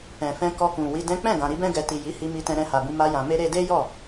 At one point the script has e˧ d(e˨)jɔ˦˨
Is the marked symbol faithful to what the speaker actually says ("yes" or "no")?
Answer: no